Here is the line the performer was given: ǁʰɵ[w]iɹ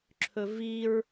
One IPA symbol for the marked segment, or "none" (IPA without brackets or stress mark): v